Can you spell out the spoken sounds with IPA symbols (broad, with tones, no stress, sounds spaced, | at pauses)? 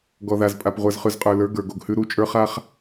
ɡ ɔ˨ ð a˨ z pʼ a˨ p ʁʷ ə˞˨ z χ ʉ˨ z qʼ ə˞˨ l ə˞˨˦ ɡ ə˞˨ ɡ o˨ ɡ h ʉ˦ ɾ u˦ t͡ʃʼ ə˞˦ χ a˦ χ